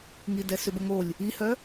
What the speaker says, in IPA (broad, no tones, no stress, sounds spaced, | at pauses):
ŋ i d ɛ s ʏ b ə ŋ o lʲ | i h œ